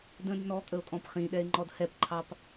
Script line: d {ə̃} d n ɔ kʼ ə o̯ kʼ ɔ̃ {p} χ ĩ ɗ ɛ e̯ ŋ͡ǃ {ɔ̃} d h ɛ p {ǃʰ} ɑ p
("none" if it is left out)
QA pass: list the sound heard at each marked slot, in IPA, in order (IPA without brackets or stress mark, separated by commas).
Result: ə̃, p, ɔ, ǃʰ